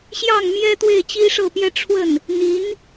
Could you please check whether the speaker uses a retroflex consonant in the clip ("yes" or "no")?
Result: yes